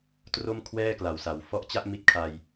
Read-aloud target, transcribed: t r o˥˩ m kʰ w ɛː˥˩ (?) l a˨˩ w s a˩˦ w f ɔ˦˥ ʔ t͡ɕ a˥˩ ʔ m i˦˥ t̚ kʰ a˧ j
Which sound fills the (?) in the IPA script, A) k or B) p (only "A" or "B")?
A